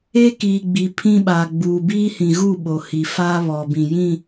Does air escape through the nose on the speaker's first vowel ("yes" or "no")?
no